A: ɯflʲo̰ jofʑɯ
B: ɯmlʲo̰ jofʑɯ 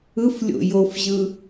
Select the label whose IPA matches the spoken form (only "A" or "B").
A